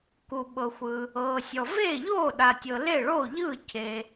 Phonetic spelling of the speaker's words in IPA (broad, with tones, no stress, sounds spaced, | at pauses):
k u˩ ɓ ɤ˩ xʷ ɯ˩ | ɤː˩ sʲ ɔ˩ v eː˥˩ ʎ oː˥˩ ɗ a˩ tʲ ɤ˩ l e˥˩ ɭ oː˥˩ ʎ ɯː˥˩ cʰ e˩